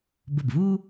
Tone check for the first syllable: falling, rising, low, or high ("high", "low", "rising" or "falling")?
falling